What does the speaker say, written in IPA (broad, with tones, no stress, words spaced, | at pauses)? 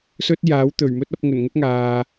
sɵ˥t̚ jaː˨˥wt̪ɵ˨˩ɥ mɵ˥t̚ɐ˨˥p̚ ŋɵ˨˩nŋɵ˥t̚ŋaː˨